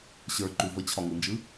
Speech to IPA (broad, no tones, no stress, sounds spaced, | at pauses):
ɕ ə˞ ǃ u v ə t͡ɕʰ ɒ ŋ ɯ n d͡ʒ ɯ